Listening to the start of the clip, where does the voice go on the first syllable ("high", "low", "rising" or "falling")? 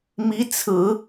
rising